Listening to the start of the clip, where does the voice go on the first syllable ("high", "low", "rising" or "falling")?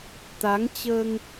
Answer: rising